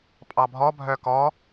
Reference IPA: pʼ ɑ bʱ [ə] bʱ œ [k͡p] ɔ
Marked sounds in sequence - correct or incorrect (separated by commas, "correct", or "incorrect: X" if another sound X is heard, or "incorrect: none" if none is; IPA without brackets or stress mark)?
incorrect: ɔ, incorrect: k